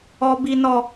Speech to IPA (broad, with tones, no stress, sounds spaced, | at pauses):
ɔ˦ b i˦ n ɔ˦